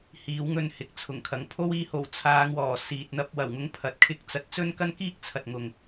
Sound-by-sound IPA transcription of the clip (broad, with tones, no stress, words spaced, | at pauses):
hiː˨˥wŋɵ˧n hɪ˨k̚t͡sʰʊ˨˩ŋkʰɐ˨ŋ pʰo˥w iː˧ho˨˩w t͡sʰaː˨˧ŋwɔː˨˩ siː˨t̚n̪ɐ˧p̚wɐ˨˩wŋʊ˧ŋ pʰɐ˨t̚kʰɪ˧k̚t͡sɐ˨˥t̚ t͡sɵ˥nkɐ˥nkiː˥k̚ t͡sʰɐ˨t̚ŋʊ˨ŋ